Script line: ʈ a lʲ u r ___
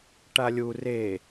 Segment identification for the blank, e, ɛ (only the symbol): e